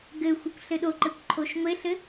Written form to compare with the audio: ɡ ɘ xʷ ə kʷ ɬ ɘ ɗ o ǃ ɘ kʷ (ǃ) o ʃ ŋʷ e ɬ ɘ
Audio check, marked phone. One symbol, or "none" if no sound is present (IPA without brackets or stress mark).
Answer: ǃʰ